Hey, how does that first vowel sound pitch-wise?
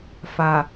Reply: low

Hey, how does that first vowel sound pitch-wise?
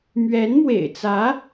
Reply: rising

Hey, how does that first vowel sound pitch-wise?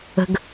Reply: high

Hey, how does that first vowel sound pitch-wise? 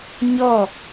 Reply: falling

